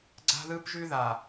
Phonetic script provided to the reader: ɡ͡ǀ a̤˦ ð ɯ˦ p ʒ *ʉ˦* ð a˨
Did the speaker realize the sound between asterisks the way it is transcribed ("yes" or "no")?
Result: yes